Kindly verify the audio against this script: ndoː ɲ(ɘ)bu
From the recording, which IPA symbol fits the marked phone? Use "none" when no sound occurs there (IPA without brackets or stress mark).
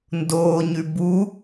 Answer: ʉ